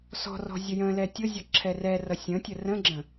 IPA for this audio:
s ɔ̤ r ɔ̤ zʲ ə j ə̃ l ɛ tʲ ʊ zʲ ɔ ǁʰ ɛ r ɛ r ʌ sʲ ə̃ tʲ ə r ə̃ ɡ͡ǁ ə̃

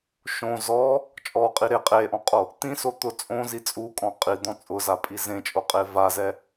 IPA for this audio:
ʃ õ z ɔ | t͡ʃʼ ɔ qʼ i ɾ e qʼ e ʔ ɔ̃ qʼ o | t̪ ĩ s o t̪ ʊ t͡sʼ õ z i t͡sʼ u kʼ ɔ̃ qʼ i d̪ ɔ̃ t͡sʼ ʊ z a pʼ i z ẽ t͡ʃʼ o qʼ e v a z ɛ

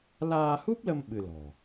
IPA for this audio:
l aː˧ h u˦˥ p̚ l ə˧ m ɓ ɨ˧ l ɔ̤˨˩

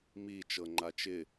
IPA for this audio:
m i t͡ʃ ɤ ŋ͡ǃ a t͡ʃ ɪ

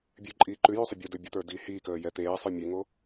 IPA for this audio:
bʲ ʉ ǃʼ iː ǃ ʉ j ʉ sˤ ə bʲ o d ə˞ bʲ ə t̪ ə˞ d iː h iː k əː j ɛ t̪ eː sˤ ə˞ mʲ e ŋ o

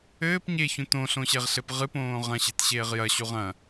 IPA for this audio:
ɘː p ɲ e ç ũ t õ ɬ õ ɕ e ʁ ɬ ɘ p ʁ ɨ p õː ʁ ɐ̃ ɕ e̤ t ɕ eː ʁ j ɐ ɕ u ʁ ɐ̃

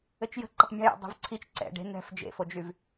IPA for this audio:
ɘ t͡ʃ j ə̤ ǃ ə tˤ mʲ ə̤ j ɛ̰ dˤ o̤ v ǀʰ i t͡ʃ ǀ ɛ̰ ɖ e̤ n̪ ɛ̤ f d͡ʒ ḛ f o d͡ʒ y v

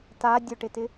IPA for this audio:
t a dʲ ʊ ʈ ɪ t ɪ

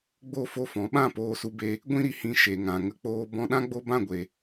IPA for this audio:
ɡ͡b o˦˨ f o˦˨ f ɔ̃˨˦ ɓ ã˦˨ p oː˧ s u˧ b e˧ | ɡʷ ĩ˦ ɾ i˨ h ĩ˧ ʃ e˨ ŋ ã˨ ŋ ə˧ k͡p oː˧ b ɔ̃˧ ɗ ã˦ ɡ͡b o˦ b ã˦˨ ɡʷ e˨

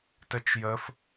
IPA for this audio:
t ə t͡ʃ j ə f

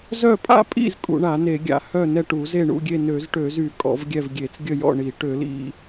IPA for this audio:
z œ˥˨ pʼ a̰˥˨ pʼ ḭ˥˨ z kʼ ṵ˧˩˧ ɳ a˧˩˧ n e˧˩˧ ɡʲ a̰˧˩˧ h œ˥˨ n ɛ˥˨ ʈ u˧˩˧ z e˥˨ ɳ ṵ˥˨ ɡʲ e˥˨ n ø˧˩˧ z ʈ ø˧˩˧ z y˧˩˧ kʼ ɔ̰˧˩˧ v ɡʲ ɛ˥˨ v ɡʲ e˧˩˧ t͡s ɡʲ ə˥˨ j ɔ̰˥˨ ɳ i˧˩˧ ʈ ø˧˩˧ l ḭ˥˨

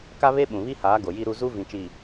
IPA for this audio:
k a˦ β e˦ ɓ ũ˨ β i˦ h aː˨˦ ɡ o˨ j i˦ ɾ u˦ z u˦ v ĩ˨ t͡ʃ i˨

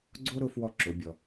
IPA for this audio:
ɡ͡ǀ o˥ ɾ ʊ˧˥ f w ɔ˧ ǁ ʊ˩˧ bʲ ɔ˩

